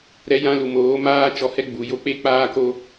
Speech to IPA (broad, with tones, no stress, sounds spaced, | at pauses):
ɾ ɛ˧ j ã˧ l u˨ m oː˨˦ m aː˦ t͡ʃ ɔ˧ h ɛ˦ ɡ͡b u˨ j o˦˨ k͡p e˦ k͡p aː˦ k o˦